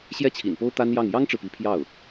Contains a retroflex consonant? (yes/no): yes